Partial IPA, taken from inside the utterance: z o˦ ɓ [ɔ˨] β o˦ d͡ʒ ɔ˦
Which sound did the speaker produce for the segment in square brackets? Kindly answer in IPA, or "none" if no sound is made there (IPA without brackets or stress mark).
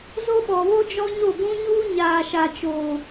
ɔ˨